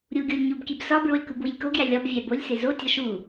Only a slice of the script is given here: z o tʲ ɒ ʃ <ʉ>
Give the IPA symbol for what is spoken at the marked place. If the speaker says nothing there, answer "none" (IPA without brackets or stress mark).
u